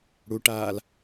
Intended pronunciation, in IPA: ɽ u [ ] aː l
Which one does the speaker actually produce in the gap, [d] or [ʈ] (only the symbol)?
ʈ